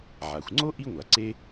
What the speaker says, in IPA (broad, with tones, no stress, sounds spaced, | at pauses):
ʕ a˩ xʷ ŋ͡ǀ o˥ ʔ i˥ ŋʷ a˩ ǀ e˥